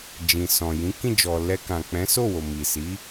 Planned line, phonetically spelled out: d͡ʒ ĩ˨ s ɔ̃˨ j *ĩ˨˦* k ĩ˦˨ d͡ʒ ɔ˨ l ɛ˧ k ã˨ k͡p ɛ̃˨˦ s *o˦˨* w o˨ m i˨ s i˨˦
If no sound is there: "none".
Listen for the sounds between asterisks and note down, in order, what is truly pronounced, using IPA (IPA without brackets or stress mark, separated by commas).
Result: ĩ˨˦, o˦˨